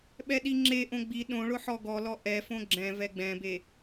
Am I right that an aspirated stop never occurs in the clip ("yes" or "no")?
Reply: yes